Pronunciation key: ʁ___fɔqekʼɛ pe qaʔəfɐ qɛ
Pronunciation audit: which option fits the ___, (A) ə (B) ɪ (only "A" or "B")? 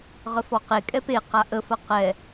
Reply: A